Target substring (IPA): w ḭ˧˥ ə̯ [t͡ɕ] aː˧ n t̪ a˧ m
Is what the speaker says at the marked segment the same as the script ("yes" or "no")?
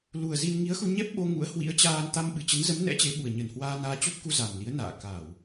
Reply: yes